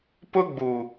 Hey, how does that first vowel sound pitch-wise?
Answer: high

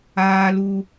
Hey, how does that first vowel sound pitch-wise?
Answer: high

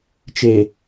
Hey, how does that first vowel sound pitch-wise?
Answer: low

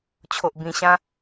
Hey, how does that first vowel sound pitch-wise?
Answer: low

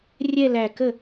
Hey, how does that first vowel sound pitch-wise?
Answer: falling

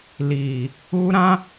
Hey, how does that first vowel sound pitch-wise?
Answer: low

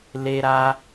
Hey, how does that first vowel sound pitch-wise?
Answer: high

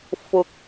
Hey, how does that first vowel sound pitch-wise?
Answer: low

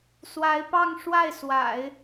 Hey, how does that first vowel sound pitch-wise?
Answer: rising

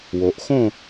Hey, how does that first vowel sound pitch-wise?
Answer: low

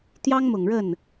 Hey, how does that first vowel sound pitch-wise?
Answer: high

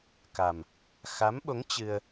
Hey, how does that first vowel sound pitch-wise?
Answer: low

